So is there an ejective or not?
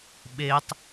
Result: no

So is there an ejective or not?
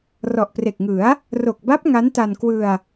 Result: no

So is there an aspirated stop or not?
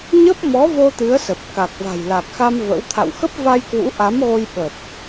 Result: yes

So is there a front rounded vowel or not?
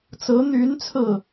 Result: yes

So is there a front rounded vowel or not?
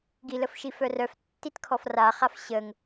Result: yes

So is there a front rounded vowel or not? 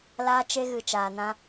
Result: no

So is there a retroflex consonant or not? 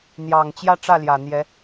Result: yes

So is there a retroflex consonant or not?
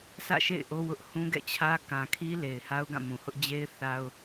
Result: no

